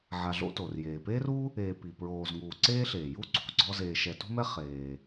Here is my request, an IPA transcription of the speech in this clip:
ʕ a˨ ɮ o̰˦ t o˩ r j eː˩ p eː˥ r u˥ | eː˨ p i˩ p ɹ oː˨ z ŋ uː˨ ǀ eː˥ ɬ eː˩ j u˦ ǀʰ ṳ˩ ɡ͡ǀ ɔ˦ z eː˨ ʃ ɛ˨ t ṳ˥ m ɛ˥ χ eː˨

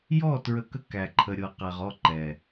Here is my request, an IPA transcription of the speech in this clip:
j ɔ˦˨ t ɹ ə˧ k ə˦ k æ˨ ǃʰ ə˨ ɾʲ ɤ˨ q æ˨ ʁ ɔ˦˨ ǃ ɛ˨

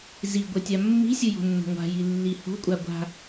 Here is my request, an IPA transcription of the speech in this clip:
z i ɡʷ ʌ tʲ a mː i̤ sʲ ɯ j o̤ nː o̤ ŋʷ a̤ j i lː i h o̤ kʷʼ a ɡʷ a̤

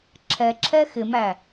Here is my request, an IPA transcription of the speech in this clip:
ǁʰ ɛ ǁʰ ɛ x ɪ m æ

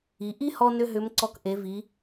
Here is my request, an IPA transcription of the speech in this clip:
i˩˧ ʔ i˥ h ɔ˥ n ʏ˥ ɦ ʏ˧˥ m ǀ ɔ˧ k ʔ e˩˧ v i˩˧

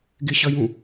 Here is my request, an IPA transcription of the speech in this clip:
ɡ ɪ ɕ ʌ j ũ

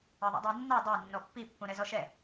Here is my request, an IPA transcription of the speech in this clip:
ʌ ðˤ ṵ dˤ æ nː ɑ dˤ ɑ nː ɔ pː i pː ũ ɾ ɛ z ɔ ʃ ɛ

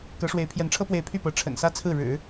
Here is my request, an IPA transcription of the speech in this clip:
k ɤ˧˥ ʂ w e˧˥ ɪ̯ pʰ j ɛ˧˥ n ʈ͡ʂʰ ɤ˥ p w e˥˧ ɪ̯ pʰ y˥˩ p ɤ˧˥ ʈ͡ʂʰ ə̰˨˩ n s ä˥ t͡sʰ ɹ̩˥˩ ɻ ɻ̩˨˩˦

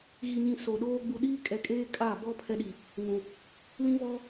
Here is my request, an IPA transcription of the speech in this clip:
ɣ i˨ ɲ ĩ˨ s o˨ ɗ oː˦ ɡ͡b u˨ ɗ iː˦ kʼ ɛ˨ kʼ eː˦ kʼ a˦˨ b ɔ˦ pʰ ɛ˦ ɗ i˨ | ŋ ũ˨ | l ĩ˦ v ɔ˦

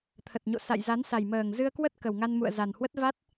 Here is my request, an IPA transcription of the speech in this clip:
t̪ʰ ə˨˩ t̚ ɲ o̰˧˨ s a̰˧˨ j z a˨˦ n s a˨˩ j m əː˨˩ ŋ z ɨ˧ ə̯ k w ə˦˥ t̚ k ə˨˩ w ŋ a˧ n m ṵ˧˨ ə̯ z a˨˩ n h w ə˦˥ t̚ v a˦˥ t̚

